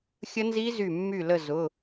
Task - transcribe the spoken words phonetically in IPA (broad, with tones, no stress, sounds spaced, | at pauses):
xʲ ə˦˥ n z i˦˥ z y˧˩ mː y˧˩ l ə˧˩ z ʊ˩˧˩